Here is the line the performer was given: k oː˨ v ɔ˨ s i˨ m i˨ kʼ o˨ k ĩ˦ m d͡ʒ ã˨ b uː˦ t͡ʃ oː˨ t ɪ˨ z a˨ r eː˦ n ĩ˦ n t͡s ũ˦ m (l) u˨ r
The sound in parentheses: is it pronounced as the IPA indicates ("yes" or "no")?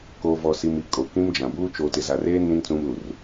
yes